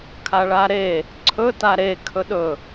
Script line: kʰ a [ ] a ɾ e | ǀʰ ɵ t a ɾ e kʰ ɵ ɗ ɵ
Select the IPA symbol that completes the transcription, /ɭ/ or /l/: ɭ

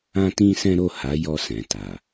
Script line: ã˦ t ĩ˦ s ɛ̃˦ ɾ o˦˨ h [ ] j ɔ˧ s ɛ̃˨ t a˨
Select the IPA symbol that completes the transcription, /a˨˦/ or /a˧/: a˨˦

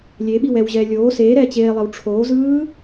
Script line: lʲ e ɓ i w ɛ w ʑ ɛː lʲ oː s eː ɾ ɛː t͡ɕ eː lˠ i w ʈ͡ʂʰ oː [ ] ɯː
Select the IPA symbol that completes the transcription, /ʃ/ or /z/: z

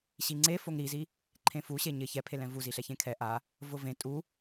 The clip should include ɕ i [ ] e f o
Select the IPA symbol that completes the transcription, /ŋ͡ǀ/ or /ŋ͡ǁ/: ŋ͡ǀ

